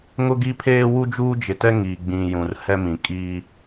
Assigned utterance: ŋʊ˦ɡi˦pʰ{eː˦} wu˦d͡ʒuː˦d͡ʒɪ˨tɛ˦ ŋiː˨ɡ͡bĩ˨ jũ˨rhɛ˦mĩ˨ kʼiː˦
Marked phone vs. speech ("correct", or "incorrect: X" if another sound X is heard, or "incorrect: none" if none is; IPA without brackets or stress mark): correct